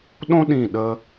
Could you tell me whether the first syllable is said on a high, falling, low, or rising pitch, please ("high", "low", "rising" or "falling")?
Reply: high